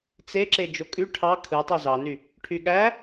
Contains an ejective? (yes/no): yes